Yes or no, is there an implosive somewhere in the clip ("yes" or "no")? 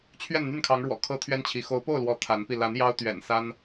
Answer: no